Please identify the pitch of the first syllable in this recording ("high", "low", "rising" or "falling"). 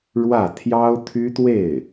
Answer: falling